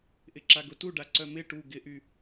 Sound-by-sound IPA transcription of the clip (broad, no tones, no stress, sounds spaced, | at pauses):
ʔ ɪ ǁ a ɡ ʊ t u ɖ a ǀ œ m ɪ ʈ u ɡ ɪ ʔ y